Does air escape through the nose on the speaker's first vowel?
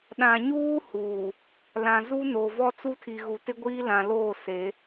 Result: yes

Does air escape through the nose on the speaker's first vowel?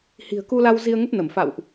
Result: no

